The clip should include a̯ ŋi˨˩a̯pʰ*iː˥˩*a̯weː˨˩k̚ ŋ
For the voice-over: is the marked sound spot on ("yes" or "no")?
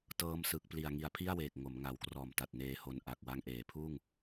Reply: no